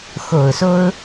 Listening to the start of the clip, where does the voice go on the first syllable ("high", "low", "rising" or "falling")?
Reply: low